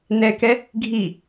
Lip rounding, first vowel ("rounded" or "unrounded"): unrounded